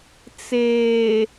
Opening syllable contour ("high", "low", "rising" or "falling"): low